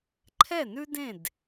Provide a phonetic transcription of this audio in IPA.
ǃʰ ɛ˥˨ n ʉ˥ d ẽ˥˨ d

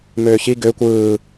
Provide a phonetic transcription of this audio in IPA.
m øː ç i ɡ ø kʷ ɯː

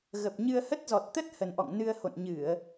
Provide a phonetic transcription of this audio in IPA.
ɣ ə˨˩ p̚ ɲ ɨ˧ ə̯ h ə˦˥ t̚ z ɔ˨˩ t̚ t̪ ə˦˥ t̚ h ə˨˩ n ʔ ɔ̰˧˨ ŋ n ɨ˧ ə̯ h o̰˧˨ n ɲ ɨ˧˩˨ ə̯

